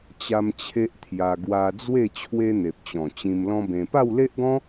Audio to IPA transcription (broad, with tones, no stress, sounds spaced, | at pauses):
t͡ɕ a˦ m t͡ɕʰ e˦ ʔ t̪ʰ j a˧ ɡ w a˦ d͡z w e˥˧ t͡ɕʰ w e˦ n̪ e˨ p̚ t͡ɕ ɔ̃˨˩ t͡ɕ ĩ˧ m l ɔ̃˦ b ẽ˧ p a˥˧ w l e˦ ʔ ɡ ɔ̃˦